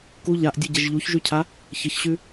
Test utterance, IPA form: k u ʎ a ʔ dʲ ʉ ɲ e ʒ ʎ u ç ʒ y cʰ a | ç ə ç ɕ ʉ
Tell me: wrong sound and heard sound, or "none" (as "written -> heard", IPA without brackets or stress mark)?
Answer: ɲ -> ɟ